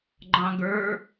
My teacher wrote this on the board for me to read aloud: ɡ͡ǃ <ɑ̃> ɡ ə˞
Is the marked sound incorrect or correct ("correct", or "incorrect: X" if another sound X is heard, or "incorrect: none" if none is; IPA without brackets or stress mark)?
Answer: correct